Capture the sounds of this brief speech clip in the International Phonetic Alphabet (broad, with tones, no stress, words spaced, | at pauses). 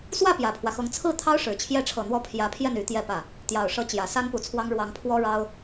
swä˥˩ pjä˨˩pʰwä˦xɤ˧˥ŋ t͡sʰɹ̩˥˩t̪ʰɑ˥ʊ̯ʂɻ̩˨˩ t͡ɕʰjɛ˧˥ʈ͡ʂʰɤ˨˩n̪wɔ˧˥ pʰjä˧˥pʰjɛ˥˩n y˧˥t̪jɛ˥˧pä˥˩ | t̪jɑ˨˩ʊ̯ʂɤ˧˥ t͡ɕjä˨˩sa˥npu˨˩t͡sʰwɑ˥ŋ ɻwɑ˧˥ŋpʰwɔ˥ɻɑ˥ʊ̯